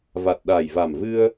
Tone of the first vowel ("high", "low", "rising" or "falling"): low